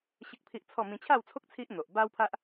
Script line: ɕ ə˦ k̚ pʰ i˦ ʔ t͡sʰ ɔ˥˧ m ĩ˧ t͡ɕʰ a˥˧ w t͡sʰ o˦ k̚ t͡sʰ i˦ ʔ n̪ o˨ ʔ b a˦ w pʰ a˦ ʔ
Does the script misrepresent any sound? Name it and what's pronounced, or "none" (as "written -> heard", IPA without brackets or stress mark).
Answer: none